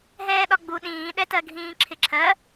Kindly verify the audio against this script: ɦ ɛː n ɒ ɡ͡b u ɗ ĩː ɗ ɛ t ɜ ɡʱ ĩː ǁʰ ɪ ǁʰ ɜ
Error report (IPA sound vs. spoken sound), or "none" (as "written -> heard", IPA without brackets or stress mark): n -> ɗ